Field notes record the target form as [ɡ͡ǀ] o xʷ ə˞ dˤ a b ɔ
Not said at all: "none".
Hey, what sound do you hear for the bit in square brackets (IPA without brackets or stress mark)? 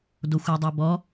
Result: d